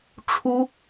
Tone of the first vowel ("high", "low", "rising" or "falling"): high